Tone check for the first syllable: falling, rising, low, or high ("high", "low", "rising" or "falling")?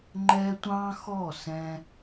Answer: high